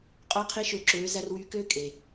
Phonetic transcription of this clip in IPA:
qʼo˦qʰi˦ʃø˧ǁøː˨˦ zæ˧rwyː˧køː˦ kʼe˨

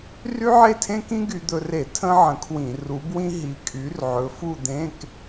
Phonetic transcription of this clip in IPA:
ry˥ʕe˥˧tʰẽ˥kĩ˥ ɡy˧d̪ɵ˧re˧˩˧ tʰə̃˥ʕə̃˨˥kʰwĩ˧˩˧ ru˨˥bwĩ˥ ɦi˨˥kʼy˨˥rʕɵ˨˥ fu˥˧d̪ẽ˧˥˧k

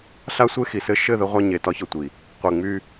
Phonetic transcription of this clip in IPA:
ɬa˦sʷe˦xi˨ sɘ˦ ʃɘ˦˨ ðɘ˦ʁʷa˦ ɲe˨tɒ˦çɤ˨tʷi˨ | qʷe˨ ŋ͡my˦

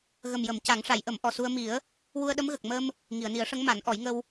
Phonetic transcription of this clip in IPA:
ɣə˨˩mjə˨˩˨m ca˨˩˦ŋʂa˨˩˦jʔə˨˩˦m ʔɔ˨˩su˧ə̯ mi˨˩˦ə̯ | wu˧ə̯ɗə˧˥mɣə˨˩k̚ mə˧m | ŋi˨˩˨ə̯ni˨˩˦ə̯ʂə˧˥ŋ ma˨˩˦nʔɔ˨˩˦jŋə˧w

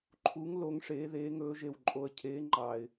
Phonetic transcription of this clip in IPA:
ǃʰu˨˦ŋ lo˨˦ŋʂeː˨˦ðeː˨˦ŋɵː˨˦ ʒe˨˩wǃʼo˨˩ə̯cʰeː˨˦ ŋ͡ǃɑː˨˩ɪ̯

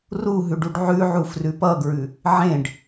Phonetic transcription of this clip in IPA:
ruɦʉɖ uɖʕʉʕu frʉpʌɡɹʉ | ʕẽɖ

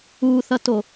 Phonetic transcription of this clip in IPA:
uθʌto

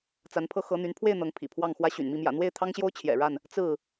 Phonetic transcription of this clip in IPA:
t͡sa˨˦npʰɤ˧ xɤ˨˦ n̪y˨˦npʰwe˥˨ɪ̯ n̪ɤ˨˦ŋ pʰḭ˨˩pʰwɑ˥˨ŋxwä˦ ɕy̰˨˩nmi˥˨ mjä̰˨˩n̪we˥˨ɪ̯t̪ʰɑ˦ŋɕjo˦ʊ̯ t͡ɕʰjɛ̰˨˩ɻa˥˨n | t͡sɹ̩˥˨

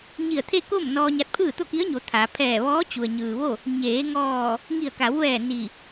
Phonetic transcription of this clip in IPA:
ɲi˧˩ə̯t̪ʰe˥˨ko˥˨m nɔː˧ɲa˧t̚pʰɯː˥˨ t̪o˥˨ki˧˥ə̯ɲo˩˧ t̪ʰa˩˧ pʰɛː˧˩ʋɔː˧˥ t͡ɕu˩ə̯ɲɯː˩ʋo˥˨ | ɲeː˩˧ŋɔː˧˩ | ŋi˧˩ə̯ka˩˧wʋɛː˧˩ ni˧˩

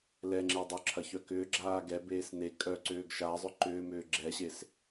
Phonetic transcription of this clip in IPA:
lɛŋ͡ǁe dˤʏ ǁʰɐçœkʏːɡ͡ǁaː ɡɛbeːs ne kʼœ ǀʏːɡʃazˤʏ ǃʏːmʏː ɡ͡ǁɛɕes

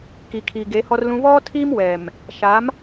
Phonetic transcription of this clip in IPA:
ki˨kʰi˨ ɡe˨˦hɔ˦rlũ˦ βɔ˦ tʰi˦mwɛ˨m | ʃa˨˦m

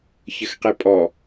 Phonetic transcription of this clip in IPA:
çəxqepʼɔ

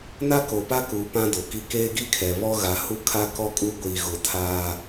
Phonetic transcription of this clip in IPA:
na˦ko˨pa˦kuː˨ pã˦do˨ki˦ keː˦ɡi˦kʰɛ˨βɔ˦ ɣa˨ hu˦kʰa˦ kɔ˦kʼu˦ɡʷiː˨ ɣʊ˨tʰaː˨

